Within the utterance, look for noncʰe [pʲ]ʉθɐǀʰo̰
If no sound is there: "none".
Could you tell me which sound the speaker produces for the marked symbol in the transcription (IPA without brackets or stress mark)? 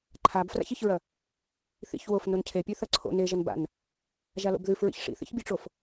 pʲ